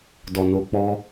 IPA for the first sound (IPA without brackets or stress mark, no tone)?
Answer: d